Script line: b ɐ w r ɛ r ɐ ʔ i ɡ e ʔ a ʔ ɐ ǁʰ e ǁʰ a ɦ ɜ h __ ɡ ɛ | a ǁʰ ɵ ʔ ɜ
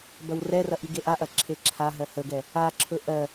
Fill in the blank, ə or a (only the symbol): ə